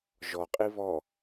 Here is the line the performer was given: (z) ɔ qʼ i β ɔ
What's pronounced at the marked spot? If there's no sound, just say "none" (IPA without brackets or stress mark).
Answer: ʒ